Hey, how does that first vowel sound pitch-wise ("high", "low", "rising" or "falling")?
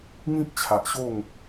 high